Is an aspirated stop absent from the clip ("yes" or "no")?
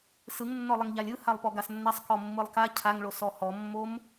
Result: no